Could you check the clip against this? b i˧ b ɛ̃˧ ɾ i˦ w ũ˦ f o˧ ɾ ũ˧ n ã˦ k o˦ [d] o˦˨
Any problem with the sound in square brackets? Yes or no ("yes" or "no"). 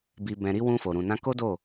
no